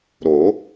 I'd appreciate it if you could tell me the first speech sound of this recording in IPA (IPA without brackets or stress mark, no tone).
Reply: ɾ